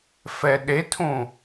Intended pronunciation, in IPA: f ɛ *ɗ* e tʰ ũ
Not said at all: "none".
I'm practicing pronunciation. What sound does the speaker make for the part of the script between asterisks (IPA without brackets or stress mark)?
ɗ